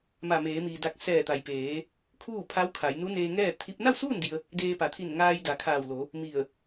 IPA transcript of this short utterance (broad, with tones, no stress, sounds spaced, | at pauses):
m a˧˩ m eː˩˧ m iː˩ d a˧˩ k̚ s ɛː˧˩ t̪ a˩ j p eː˩˧ | kʰ uː˥˨ pʰ a˧˥ w kʰ a˩˧ j n u˧˥ n eː˧ ŋ ɛː˥˨ t̪ʰ i˧˥ p̚ n a˥˨ w s uː˥˨ n d i˧ ə̯ | d eː˧ p a˩˧ t̪ʰ i˧˩ n ŋ aː˧ j d a˩˧ kʰ aː˧˩ w l o˩˧ | m i˧˩ ə̯